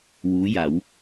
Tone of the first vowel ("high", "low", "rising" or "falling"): rising